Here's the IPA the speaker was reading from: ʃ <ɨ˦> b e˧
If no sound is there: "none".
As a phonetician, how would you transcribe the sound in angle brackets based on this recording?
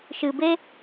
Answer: ɨ˨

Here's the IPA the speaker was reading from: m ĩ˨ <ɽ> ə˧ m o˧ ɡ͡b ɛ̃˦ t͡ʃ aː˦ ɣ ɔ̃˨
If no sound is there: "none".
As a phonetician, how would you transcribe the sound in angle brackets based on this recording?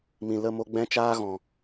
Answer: l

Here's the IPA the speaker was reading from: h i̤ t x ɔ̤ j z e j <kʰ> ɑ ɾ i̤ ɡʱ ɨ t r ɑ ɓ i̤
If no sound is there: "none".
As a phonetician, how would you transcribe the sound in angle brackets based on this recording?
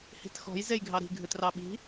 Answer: ɡʱ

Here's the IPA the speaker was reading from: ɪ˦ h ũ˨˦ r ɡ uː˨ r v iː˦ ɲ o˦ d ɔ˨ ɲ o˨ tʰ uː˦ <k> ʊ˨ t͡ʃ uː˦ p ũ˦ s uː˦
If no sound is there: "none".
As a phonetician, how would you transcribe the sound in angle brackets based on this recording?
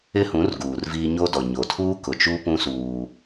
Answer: k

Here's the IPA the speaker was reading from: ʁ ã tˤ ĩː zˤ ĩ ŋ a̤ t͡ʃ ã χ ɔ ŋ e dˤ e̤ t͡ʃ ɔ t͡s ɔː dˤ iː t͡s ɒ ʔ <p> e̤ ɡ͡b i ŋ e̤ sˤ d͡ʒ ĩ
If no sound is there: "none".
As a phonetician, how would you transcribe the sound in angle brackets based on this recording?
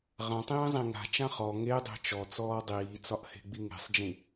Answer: h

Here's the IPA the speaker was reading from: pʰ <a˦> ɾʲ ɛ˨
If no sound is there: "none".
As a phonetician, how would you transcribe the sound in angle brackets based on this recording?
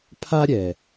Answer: a˦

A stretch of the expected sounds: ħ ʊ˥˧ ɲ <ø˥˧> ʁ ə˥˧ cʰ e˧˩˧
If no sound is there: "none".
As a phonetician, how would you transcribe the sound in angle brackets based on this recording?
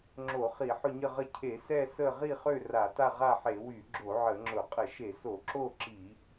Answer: ə˥˧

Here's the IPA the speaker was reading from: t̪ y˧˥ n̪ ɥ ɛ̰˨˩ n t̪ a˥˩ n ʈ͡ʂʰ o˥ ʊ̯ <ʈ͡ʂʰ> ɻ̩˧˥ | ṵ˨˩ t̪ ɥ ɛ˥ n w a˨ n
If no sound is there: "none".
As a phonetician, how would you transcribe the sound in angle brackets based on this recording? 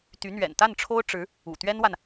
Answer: ʈ͡ʂ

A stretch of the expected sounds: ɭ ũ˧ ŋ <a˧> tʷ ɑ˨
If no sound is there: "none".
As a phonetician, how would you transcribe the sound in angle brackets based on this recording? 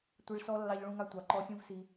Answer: a˧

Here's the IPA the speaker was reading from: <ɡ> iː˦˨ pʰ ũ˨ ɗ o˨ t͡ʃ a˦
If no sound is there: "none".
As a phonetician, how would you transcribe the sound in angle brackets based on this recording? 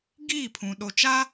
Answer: ɡ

